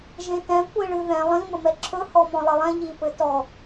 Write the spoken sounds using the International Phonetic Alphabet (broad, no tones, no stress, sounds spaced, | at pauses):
ʒ ẽ t ɛ̃ kʷ i ɭ ɨ ð ɛ̃ lˠ ĩ m ə m ɛ ǁʰ ɵ h ɔ m ɔ̃ lˠ ɘ lˠ ɛ̃ ʎ i p ɘ t ɔ